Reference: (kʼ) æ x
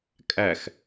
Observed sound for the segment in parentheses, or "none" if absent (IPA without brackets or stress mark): kʼ